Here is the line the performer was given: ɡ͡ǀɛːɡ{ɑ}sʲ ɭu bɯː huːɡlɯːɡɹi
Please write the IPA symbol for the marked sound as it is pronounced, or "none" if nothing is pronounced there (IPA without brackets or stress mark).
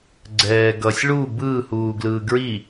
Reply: ʌ